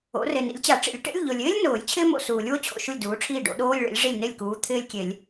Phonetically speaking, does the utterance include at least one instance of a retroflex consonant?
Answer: yes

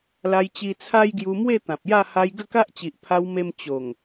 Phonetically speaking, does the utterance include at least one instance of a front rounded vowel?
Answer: no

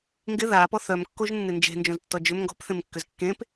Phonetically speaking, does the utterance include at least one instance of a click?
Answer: no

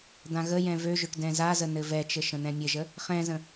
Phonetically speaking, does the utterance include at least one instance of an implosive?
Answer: no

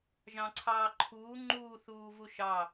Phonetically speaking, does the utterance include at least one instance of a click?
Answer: yes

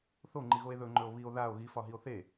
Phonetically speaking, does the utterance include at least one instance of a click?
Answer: yes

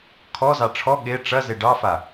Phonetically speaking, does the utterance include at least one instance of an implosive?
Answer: yes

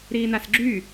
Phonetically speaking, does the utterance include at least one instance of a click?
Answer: yes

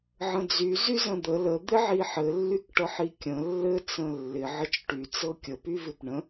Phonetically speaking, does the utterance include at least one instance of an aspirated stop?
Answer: no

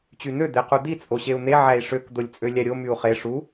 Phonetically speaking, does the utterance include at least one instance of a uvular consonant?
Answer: yes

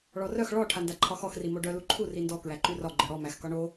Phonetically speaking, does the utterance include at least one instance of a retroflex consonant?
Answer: yes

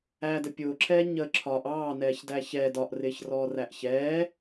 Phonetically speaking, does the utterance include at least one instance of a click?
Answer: yes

